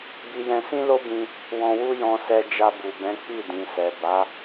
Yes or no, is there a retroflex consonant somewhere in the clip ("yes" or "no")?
no